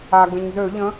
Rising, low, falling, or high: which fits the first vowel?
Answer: low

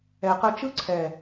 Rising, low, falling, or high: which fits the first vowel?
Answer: low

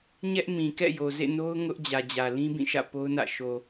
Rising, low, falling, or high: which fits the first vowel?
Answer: high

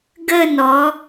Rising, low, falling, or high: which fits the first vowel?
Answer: falling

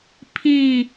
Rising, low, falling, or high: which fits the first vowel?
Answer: falling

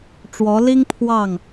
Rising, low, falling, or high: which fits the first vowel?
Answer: rising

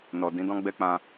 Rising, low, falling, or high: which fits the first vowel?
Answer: low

